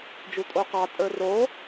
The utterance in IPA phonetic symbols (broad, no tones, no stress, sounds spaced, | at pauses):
d͡ʒ u tʼ o q ɑ tʼ ə˞ r o